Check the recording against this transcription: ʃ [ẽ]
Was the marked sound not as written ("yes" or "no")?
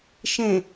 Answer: no